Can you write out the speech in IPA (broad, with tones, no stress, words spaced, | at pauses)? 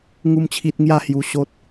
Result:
ŋu˦mt͡ɕʰi˦t̚ ŋja˦hju˧ ɕo˦t̚